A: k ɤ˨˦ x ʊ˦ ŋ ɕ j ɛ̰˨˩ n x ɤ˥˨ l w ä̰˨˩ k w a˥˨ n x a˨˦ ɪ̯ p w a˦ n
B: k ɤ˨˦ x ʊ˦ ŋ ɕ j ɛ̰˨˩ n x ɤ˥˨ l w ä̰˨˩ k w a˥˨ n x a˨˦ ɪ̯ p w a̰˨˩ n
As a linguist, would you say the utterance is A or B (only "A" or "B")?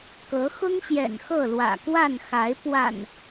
B